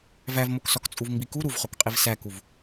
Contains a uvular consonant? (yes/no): yes